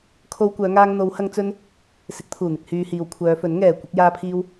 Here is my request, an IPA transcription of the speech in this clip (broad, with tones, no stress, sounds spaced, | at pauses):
kʰ o˧ w kʷ œː˨˧ ŋ aː˧ ŋ n̪ o˨˧ w h ɐ˧ ŋ t͡s ɵ˧ n | s ɪ˨˥ k̚ t̪ʰ uː˨˩ n̪ ɪ˨ k̚ h yː˨ h iː˨ w kʷʰ œː˨˧ f ɵ˨˥ n ŋ ɛː˨˩ kʷ ɪ˧ k̚ j aː˧ pʰ iː˧ w